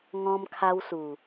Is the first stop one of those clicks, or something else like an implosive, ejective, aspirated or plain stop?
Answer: aspirated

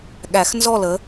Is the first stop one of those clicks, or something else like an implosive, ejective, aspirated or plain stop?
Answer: implosive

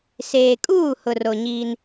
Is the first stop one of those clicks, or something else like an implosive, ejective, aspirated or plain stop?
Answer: ejective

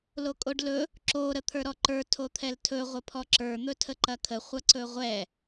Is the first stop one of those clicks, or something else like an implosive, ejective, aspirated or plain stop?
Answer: ejective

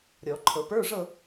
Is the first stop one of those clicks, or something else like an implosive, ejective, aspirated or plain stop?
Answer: click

